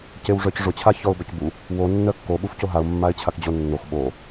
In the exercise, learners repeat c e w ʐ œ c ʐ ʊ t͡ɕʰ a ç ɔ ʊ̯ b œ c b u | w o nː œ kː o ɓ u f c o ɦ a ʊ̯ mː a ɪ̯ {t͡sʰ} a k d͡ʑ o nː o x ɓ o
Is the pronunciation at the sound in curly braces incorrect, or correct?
incorrect